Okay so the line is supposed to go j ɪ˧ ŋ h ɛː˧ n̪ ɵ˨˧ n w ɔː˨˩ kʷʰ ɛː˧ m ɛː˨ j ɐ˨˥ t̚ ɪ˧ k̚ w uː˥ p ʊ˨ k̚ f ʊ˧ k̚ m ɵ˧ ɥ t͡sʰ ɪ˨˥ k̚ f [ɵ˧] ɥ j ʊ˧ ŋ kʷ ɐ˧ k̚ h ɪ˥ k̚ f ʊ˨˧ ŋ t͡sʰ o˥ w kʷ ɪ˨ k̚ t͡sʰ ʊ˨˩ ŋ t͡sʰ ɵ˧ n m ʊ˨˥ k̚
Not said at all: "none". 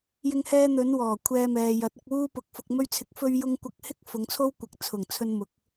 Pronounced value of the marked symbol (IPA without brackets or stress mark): ɵ˧